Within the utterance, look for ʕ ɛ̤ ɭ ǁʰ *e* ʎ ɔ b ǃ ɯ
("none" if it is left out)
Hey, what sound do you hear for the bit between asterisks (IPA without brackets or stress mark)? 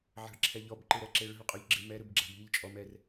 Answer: ɛ